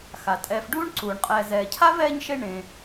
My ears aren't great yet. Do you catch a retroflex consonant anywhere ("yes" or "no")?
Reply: yes